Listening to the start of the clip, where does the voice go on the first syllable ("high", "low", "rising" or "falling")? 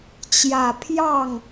low